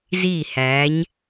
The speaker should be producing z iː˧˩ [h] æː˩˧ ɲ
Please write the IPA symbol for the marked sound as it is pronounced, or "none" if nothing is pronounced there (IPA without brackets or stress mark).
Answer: h